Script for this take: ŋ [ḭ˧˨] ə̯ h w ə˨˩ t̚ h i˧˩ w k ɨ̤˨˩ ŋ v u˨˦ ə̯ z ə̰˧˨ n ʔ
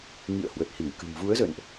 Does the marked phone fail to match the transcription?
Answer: no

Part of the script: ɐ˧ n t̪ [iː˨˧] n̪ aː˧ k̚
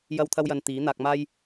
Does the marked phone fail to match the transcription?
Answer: yes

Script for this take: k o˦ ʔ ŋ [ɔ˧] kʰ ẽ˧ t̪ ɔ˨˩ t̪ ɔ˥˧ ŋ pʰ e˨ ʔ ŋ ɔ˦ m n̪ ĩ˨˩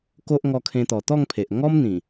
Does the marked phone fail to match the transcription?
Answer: no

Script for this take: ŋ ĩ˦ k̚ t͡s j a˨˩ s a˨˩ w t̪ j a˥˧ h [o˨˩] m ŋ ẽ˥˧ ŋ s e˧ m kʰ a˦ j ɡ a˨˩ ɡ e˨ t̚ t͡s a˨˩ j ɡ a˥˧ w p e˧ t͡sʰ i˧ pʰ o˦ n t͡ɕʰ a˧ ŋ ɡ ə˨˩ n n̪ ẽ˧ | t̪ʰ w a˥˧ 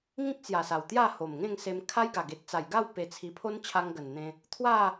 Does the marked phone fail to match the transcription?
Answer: no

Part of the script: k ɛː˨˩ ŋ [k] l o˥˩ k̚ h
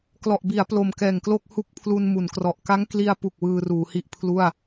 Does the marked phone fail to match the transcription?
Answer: no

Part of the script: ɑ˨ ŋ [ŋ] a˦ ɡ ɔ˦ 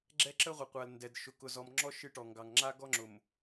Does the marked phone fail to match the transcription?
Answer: yes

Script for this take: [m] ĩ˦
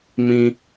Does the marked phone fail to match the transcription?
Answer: no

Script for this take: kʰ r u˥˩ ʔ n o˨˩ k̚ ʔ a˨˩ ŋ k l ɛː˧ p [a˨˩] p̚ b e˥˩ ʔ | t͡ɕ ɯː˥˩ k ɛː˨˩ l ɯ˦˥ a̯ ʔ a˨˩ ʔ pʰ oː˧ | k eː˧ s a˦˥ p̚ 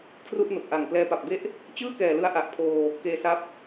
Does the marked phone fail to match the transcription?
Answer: no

